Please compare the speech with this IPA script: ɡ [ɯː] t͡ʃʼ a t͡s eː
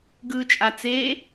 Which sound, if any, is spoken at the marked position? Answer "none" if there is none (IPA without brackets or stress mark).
ɯː